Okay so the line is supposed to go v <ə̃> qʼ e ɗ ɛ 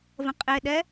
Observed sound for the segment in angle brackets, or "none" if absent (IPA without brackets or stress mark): ə̃